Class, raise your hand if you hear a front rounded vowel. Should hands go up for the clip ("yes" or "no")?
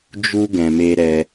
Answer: no